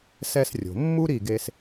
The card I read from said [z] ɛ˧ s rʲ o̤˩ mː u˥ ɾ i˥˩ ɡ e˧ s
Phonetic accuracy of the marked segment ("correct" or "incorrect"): incorrect